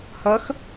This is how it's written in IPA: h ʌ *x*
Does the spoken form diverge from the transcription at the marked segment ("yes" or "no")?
no